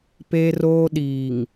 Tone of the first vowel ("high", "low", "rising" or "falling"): high